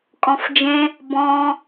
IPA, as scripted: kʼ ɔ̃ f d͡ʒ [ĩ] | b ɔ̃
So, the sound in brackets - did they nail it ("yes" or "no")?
no